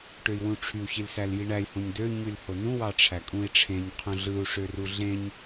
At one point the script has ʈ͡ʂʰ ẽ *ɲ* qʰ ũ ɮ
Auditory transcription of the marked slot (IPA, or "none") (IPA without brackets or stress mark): ɲ